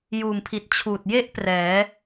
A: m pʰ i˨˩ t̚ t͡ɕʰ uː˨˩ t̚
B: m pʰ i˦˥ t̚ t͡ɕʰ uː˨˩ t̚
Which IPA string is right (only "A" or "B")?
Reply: A